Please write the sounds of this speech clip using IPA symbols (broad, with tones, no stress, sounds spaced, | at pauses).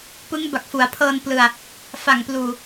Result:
p ɯ˦˥ ŋ b a˨˩ k̚ f u˩˦ a̯ pʰ ɤː˧ n p l ɯ˨˩ a̯ | f a˨˩ ŋ p l uː˨˩